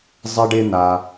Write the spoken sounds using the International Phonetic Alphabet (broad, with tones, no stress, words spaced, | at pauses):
zˤɪ˦ɖɪ˦n̪a˧